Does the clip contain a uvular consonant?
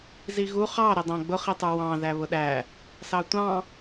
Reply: yes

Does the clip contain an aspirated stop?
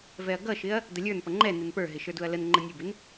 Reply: no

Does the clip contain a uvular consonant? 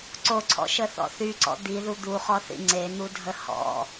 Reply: yes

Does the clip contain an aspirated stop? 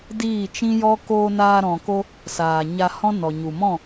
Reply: no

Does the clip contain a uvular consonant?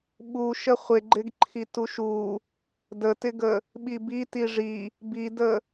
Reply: yes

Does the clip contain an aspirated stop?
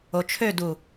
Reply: yes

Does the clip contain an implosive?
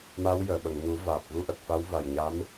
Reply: yes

